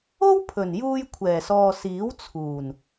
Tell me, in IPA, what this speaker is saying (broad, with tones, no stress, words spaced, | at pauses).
o˥wpʰɵ˨˩n juː˧jkʷʰɛː˨˩sɔː˨ siː˨˥wt͡sʰuː˨˩n